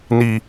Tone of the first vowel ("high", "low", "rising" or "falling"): low